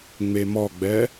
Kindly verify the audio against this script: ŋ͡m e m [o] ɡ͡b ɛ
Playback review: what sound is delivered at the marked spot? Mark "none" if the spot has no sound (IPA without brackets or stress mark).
ɔ